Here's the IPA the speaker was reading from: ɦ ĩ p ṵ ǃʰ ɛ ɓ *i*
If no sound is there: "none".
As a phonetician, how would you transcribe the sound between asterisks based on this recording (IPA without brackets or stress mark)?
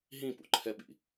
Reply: ḭ